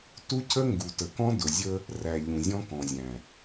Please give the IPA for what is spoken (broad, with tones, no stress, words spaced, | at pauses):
tu˦cʰə˦ŋɡu˨tə˨ kɔ̃˦dʊ˨zʲə˦ | ræ˨ ʎũ˨zʲɔ̃˦ kɔ̃˨zʲæ̃˨